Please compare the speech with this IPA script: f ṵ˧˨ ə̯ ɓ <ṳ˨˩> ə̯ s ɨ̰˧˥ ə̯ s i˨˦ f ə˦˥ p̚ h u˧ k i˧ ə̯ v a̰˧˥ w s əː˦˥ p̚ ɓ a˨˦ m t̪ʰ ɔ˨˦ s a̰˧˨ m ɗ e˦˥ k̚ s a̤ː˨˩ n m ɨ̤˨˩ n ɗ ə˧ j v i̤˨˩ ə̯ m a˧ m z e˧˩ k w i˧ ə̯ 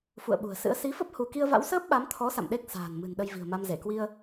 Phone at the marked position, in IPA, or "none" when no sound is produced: ṳ˨˩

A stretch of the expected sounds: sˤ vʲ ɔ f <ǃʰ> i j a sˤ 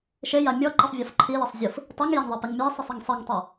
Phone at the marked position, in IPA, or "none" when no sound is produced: ǃʰ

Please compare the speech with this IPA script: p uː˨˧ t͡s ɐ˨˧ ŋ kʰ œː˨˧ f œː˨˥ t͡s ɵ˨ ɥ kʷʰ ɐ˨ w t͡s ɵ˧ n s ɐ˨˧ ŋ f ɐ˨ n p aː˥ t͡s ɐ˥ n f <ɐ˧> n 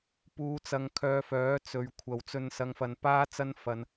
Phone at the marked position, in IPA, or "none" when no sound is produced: ɐ˧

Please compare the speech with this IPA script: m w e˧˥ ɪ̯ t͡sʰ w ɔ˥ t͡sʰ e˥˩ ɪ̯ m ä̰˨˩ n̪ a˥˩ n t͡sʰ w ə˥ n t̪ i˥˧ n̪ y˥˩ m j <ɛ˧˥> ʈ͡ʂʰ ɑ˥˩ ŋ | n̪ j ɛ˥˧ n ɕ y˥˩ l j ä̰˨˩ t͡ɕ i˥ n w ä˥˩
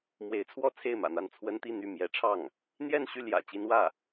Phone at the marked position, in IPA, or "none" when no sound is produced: ɛ˧˥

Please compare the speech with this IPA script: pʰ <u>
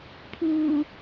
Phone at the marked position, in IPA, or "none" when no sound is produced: u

